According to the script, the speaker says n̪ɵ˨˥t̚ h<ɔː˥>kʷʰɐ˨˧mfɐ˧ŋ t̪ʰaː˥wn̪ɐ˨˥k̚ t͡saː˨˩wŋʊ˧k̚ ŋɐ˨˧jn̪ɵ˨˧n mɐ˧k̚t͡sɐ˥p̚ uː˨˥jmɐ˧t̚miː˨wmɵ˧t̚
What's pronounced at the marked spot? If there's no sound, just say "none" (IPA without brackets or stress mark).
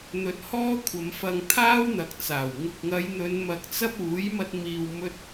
ɔː˥